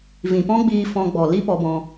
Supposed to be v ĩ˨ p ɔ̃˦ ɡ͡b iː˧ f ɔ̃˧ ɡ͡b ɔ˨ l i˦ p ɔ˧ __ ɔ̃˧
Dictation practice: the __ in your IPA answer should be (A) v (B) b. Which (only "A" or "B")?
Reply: B